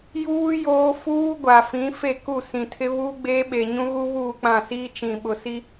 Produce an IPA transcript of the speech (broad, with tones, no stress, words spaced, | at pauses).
juː˦ joː˦ fuː˦ ɡʷa˨fĩ˨˦ fe˦˨ku˦˨ sĩ˨tʰɪ˦ βuː˦ɡ͡beː˦ɓe˨ ɲũ˦ɣu˦βuː˦˨ k͡pã˦˨siː˦ t͡ʃĩ˨ɓʊ˨si˦